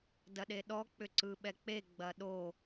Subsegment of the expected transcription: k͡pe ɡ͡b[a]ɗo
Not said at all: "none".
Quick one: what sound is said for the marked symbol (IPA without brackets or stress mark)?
ɐ